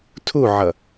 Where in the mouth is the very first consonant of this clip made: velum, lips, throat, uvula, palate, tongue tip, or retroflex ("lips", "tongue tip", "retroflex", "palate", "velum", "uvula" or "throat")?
tongue tip